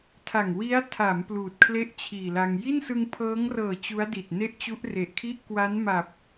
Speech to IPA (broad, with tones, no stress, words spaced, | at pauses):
tʰa˨˩ŋ wi˦˥a̯tʰa˩˦m pluː˨˩t̚kʰle˥˩ʔt͡ɕʰiː˨˩la˧ŋ ji˥˩nsɯ˧ŋpʰɤː˦˥ŋrɤː˨˩ t͡ɕu˦˥a̯di˨˩t̚ne˥˩ʔ t͡ɕu˦˥ʔre˨˩ʔkʰi˥˩ʔ kwa˦˥nma˨˩p̚